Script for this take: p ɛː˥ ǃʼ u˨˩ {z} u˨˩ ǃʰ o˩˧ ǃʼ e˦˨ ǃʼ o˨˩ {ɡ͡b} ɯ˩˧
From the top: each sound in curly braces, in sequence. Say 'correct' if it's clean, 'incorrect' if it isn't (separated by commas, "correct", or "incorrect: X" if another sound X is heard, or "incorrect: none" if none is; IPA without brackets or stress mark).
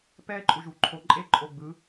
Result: incorrect: ʒ, correct